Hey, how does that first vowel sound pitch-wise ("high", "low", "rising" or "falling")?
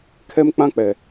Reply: high